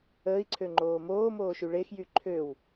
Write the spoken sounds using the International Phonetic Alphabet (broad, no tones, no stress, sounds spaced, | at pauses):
əː i̯ ǀʰ ø ŋ͡ǃ oː m oː m oː ʃ y ɭ e x j y ǃʰ ø w